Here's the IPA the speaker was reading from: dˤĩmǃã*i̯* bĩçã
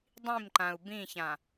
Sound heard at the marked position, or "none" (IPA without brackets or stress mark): u̯